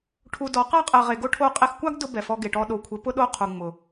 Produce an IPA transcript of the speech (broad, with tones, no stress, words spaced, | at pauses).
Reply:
ʈʰu˧dɔ˨˦ qa˦qʼɛ˨ʁe˨ ɡo˦ʈʰo˦˨ qʼe˧xkʷa˦ɡdʊ˧ bɛ˨fɔ˧ ɡe˨ʈɔ˧ ɗo˨kʷʰɪ˨˦pʊ˦ ɗo˦qʰu˨ŋ͡mʊ˨